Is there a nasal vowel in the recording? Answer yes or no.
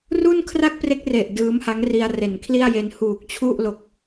no